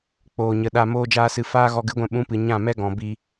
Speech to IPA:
k͡p oː˨ ɲ ə˨ ɗ a˧ m oː˦ d͡ʒ aː˦ s ɨ˧ f aː˦ ɣ ɔ˧ ɡ ɨ˨˦ ɡʷ ɛ̃˧ ɓ ũ˨˦ p ɨ˨ ɲ ã˦˨ m ɛ˦ ɡ ɔ̃˨ b i˧

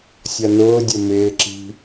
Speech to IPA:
sʲ ʌ n ʊː dʲ ə m ɪː ǁ i̤

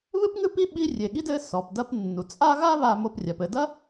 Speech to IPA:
β ɨ˥ p ŋ ɨ˦ p i˦ ɓ i˦ rʲ e˩ ɠ i˥ d ɘ˦ s ɔ˩ p d ɐ˦ p nː u˩ t͡sʼ a˦ ɣ a˦ β a˨ m o˨ p rʲ a˩ p ɘ˨ d ɐ˦

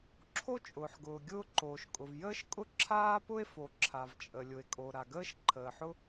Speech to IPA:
ǁʰ o˥ t͡ʃʼ ʊː˩ ħ ɡ ʊː˩ ɡʲ ʊː˥ ǃ oː˩ ʃ kʼ ʊ˩ v j əː˥ ʃ kʼ ʊ˥ ǁʰ aː˥ p ʊ˥ e̯ f o˩ ǁʰ a˩ v t͡ʃʼ ə˩ lʲ ʊ˩ e̯ kʼ o˩ ɾ a˩ ɡ əː˥ ʃ ǃʰ əː˩ ħ ʊ˥

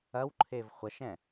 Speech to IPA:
ɐ w ǃʰ e v χʷ ɐ ʃ ɛ̃

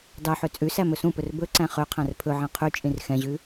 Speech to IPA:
d ɑ ħ ø t͡sʼ ʉ s æ m ɵ s ũ p ɵ r b ɵ ǀ æ̃ χ ø qʰ æ̃ r pʰ ɵ ʕ ɛ̃ qʰ y t͡ʃʼ ĩ r x ɛ̃ ʑ ʉ

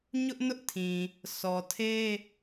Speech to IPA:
ɲ ʊ˦ ʔ n ʊ˦ ʔ tʰ ĩ˨ | sʰ ɔ˨ tʰ e˦

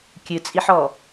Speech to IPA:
kʲ ɨ t͡sʼ i ħ ɔ

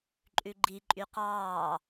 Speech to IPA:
ǃʼ ʉ ɡ͡ǃ i ǃʼ y q ɑː

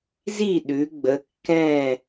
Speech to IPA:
z i˥˨ ɗ ʉ˩˧ ɡ͡b ə˩˧ kː ɛ̃˥˨

